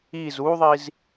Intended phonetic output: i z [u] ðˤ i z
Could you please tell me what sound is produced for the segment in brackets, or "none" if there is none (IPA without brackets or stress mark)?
u